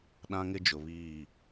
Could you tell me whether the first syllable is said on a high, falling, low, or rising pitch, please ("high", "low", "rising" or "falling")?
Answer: high